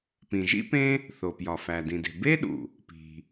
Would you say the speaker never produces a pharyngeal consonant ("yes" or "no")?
yes